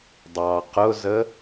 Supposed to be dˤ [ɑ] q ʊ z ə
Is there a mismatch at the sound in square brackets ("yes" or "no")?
no